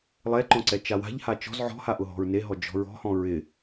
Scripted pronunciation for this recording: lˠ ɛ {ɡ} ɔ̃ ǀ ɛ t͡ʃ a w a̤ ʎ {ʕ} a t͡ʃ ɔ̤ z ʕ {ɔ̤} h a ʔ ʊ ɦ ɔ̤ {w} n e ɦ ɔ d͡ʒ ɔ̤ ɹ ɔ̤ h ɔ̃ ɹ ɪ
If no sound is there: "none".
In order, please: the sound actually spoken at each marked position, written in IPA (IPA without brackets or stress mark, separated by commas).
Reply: ǃ, h, ɔ̤, ɹ